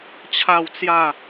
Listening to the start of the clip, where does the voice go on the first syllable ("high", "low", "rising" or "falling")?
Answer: falling